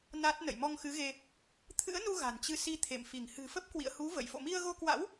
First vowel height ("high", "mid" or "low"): low